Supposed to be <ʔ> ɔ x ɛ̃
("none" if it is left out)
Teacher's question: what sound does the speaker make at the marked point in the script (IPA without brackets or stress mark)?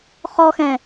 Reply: χ